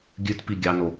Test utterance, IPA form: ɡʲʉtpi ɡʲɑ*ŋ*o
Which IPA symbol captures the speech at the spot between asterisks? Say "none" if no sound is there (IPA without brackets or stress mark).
n